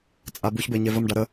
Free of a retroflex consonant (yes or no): no